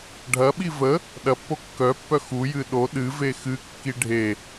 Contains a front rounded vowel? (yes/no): yes